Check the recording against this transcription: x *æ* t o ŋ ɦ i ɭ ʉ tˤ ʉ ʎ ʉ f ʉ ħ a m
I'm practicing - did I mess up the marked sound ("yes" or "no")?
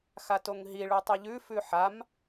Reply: yes